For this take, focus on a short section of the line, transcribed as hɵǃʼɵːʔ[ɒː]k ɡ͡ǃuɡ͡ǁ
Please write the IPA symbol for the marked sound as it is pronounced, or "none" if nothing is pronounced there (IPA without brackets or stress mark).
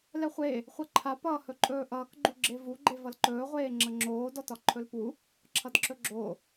ʌː